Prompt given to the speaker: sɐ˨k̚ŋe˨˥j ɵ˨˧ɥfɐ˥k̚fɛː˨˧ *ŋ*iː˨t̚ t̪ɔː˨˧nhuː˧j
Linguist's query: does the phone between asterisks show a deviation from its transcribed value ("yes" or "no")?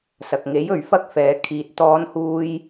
yes